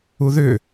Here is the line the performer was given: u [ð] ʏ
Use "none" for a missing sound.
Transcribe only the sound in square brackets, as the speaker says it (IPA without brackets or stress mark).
ð